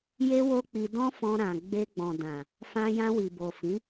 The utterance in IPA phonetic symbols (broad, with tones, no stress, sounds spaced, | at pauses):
j e˦ w o˦ k͡p i˧ d ɔ̃˦ f ɔ̃˧ ɾ ã˨ ɡ͡b e˧ ɡ͡b ɔ̃˨ d ã˨ | f ã˧ j ã˧ w i˨ b o˨ f ĩ˨˦